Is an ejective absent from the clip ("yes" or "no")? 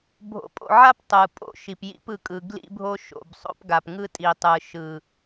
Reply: no